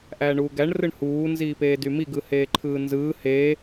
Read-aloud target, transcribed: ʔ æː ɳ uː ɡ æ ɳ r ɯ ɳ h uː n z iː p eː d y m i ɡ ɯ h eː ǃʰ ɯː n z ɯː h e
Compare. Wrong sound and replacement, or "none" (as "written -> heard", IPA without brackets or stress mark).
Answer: none